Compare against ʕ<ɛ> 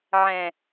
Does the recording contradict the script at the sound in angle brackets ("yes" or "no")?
yes